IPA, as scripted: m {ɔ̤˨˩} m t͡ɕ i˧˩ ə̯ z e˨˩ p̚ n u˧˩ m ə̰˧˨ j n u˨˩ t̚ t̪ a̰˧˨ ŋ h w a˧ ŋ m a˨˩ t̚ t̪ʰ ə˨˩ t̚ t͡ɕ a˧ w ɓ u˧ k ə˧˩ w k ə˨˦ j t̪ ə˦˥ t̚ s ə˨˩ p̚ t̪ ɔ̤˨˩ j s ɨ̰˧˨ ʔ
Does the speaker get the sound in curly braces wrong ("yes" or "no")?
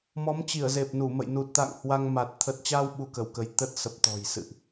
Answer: yes